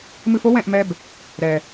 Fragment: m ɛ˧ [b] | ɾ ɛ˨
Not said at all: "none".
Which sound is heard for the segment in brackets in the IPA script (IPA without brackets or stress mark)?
b